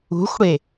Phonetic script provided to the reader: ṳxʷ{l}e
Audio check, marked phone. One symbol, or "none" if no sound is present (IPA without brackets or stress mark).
ɽ